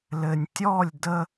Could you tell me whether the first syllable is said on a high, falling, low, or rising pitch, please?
low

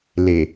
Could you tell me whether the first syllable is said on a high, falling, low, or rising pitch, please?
low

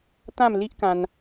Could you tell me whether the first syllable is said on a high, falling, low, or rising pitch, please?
falling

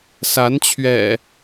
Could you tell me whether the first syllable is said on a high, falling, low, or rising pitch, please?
rising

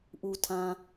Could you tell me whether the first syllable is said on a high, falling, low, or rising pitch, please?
low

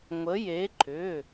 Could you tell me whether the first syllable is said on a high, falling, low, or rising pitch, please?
rising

